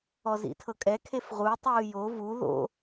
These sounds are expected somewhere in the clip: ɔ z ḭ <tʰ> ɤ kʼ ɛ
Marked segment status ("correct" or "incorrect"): correct